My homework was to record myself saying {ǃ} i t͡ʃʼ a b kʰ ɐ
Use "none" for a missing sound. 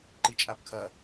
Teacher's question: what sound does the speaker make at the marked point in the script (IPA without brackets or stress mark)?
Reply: ǃ